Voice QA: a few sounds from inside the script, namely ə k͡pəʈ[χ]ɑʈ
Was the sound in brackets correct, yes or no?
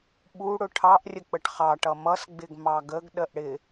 yes